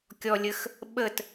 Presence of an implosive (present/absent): present